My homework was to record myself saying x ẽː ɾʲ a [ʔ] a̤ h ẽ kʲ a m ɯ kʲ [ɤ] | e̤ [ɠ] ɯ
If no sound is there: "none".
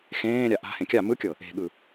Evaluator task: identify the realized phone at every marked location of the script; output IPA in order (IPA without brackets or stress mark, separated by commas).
ʔ, ɤ, ɠ